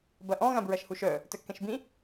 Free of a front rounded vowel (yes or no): no